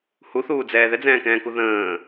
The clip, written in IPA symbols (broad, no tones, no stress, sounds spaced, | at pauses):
h u θ uː d͡z ɛː ð ɛ d͡z ɛ̃ː k ɛ̃ː k u ð ə̃ː